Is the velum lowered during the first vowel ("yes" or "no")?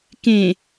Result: yes